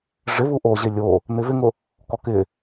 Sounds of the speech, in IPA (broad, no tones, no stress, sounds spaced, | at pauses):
ʐ ɪ v u ʔ o ʑ ɪ lʲ o | n̪ ɪ v ɪ ŋ ʊ | k ɔ k ɪ